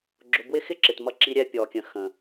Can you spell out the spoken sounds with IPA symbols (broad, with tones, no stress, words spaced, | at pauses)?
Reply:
ɡ͡ǁʊ˧ bwɪ˦xɪ˦ǁɪ˨t mʌ˧ǁi˧ɾʲɛ˧ pʲɔ˨kʲə̃˨ xə̃˨